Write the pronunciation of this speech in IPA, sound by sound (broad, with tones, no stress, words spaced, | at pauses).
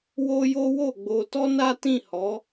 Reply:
wo˦jo˦ wo˦˨ɡ͡bo˧tɔ˦ na˦ tĩ˦˨hɔ˨˦